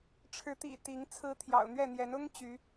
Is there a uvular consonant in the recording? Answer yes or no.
no